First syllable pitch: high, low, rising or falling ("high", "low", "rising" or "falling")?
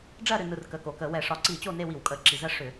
falling